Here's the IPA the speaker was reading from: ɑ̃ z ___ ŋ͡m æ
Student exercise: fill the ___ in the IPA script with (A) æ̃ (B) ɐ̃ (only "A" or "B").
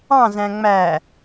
A